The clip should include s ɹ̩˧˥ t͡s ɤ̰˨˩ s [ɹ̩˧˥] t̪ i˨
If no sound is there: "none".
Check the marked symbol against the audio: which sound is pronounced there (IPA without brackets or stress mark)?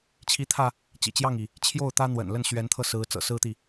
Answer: ɹ̩˥